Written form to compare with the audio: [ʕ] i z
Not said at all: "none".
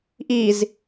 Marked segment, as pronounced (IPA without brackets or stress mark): ʔ